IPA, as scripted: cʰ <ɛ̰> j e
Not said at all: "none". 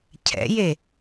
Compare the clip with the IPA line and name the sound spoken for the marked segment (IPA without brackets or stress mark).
ɛ̰